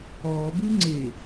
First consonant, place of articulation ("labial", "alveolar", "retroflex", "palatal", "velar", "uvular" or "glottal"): labial